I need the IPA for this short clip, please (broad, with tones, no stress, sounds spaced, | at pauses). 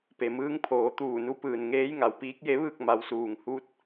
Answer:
p e˩ m ɯː˧˥ ŋ pʰ oː˩˧ t̪ uː˧˩ n u˧˥ p ɯː˩ n ŋ eː˧˥ j ŋ a˩ w p iː˧˥ k̚ j e˧˥ ʋ ɯː˥˨ k̚ m a˩˧ w s uː˩ ŋ h u˧˥ t̚